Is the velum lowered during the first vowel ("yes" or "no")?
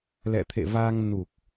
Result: no